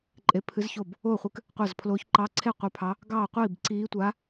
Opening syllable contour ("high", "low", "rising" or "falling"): rising